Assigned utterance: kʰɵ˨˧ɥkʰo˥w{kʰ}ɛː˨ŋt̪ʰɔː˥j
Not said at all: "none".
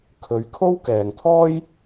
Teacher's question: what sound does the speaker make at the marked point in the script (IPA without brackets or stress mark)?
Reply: k